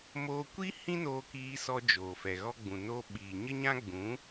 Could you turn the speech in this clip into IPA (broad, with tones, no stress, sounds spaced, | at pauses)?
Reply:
m oː˧ kʷ i˦ h ĩ˦ n oː˧ k iː˧ s ɔ˧ d͡ʒ oː˨ f ɛ˨ ɣ ɔ˧ ɡ͡b ũ˨ n oː˧ ɓ iː˨ ɲ ə˦ ɲ ã˦ ɡ͡b ũ˨˦